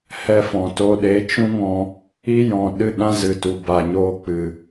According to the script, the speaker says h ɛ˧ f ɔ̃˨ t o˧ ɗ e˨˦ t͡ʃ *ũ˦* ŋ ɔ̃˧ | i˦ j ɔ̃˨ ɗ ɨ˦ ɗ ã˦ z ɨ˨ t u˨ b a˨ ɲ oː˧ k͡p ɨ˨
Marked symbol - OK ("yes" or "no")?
yes